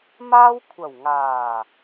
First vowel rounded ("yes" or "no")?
no